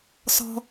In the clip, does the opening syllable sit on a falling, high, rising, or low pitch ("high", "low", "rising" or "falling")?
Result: high